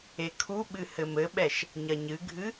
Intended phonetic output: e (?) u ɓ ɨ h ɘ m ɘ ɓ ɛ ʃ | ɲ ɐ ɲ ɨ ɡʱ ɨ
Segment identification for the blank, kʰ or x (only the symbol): kʰ